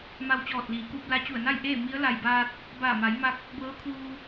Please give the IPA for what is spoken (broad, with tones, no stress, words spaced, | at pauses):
ma˧wt͡ɕɔː˧˩t̚liː˩˧kuː˧p̚ la˧t͡ɕu˧˩ə̯na˥˨j ʔeː˥˨ mi˧˥ə̯la˧˩jbaː˧t̚ | baː˧˩ma˩˧jma˧k̚ | bɤː˧˥kʰuː˧